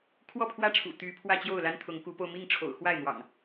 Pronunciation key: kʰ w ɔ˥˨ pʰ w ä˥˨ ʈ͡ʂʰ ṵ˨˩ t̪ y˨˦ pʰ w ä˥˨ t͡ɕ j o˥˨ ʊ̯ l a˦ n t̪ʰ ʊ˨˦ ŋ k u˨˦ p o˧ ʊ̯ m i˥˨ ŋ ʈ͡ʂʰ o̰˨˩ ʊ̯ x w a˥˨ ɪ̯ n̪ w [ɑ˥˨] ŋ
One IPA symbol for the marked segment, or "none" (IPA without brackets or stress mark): ɑ̰˨˩